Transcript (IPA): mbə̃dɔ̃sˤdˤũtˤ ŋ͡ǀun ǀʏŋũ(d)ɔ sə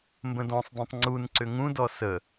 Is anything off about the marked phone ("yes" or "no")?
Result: no